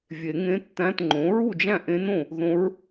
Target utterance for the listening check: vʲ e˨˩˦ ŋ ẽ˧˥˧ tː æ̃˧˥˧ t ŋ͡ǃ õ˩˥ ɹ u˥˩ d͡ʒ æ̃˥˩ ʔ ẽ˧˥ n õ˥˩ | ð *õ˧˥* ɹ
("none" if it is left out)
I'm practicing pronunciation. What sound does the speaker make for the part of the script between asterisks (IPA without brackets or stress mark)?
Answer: õ˧˥